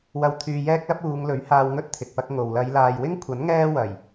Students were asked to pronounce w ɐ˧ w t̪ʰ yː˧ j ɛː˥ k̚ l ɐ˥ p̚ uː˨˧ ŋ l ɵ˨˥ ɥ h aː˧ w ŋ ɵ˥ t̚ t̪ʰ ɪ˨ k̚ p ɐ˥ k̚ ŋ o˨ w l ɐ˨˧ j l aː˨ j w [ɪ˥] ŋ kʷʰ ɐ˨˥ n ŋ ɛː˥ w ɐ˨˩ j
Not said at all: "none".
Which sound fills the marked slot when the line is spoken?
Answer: ɪ˥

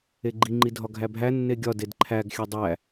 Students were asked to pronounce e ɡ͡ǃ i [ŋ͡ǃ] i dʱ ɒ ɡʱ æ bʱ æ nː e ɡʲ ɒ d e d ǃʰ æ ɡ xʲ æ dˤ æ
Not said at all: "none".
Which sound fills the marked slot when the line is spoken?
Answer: ŋ͡ǃ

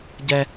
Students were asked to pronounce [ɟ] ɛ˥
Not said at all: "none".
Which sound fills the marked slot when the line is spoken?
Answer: ɟ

